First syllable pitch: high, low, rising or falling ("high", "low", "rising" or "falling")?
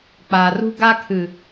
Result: low